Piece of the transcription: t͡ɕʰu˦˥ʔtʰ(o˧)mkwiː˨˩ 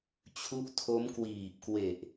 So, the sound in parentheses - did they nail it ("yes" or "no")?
no